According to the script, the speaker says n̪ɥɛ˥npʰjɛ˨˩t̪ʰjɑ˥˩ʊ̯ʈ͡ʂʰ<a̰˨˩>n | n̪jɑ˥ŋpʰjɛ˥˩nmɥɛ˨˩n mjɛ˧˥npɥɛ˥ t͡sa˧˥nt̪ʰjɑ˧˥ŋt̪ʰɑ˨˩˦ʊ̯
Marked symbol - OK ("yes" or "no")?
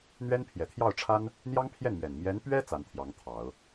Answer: no